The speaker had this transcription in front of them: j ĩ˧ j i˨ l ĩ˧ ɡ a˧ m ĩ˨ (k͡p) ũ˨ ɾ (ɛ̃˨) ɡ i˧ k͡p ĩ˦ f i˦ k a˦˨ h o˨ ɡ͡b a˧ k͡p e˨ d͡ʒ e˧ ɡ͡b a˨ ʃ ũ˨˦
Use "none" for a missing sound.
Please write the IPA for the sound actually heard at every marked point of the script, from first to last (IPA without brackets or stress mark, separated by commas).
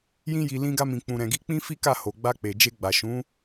k͡p, ɛ̃˨